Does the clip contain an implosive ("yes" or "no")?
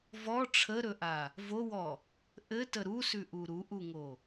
no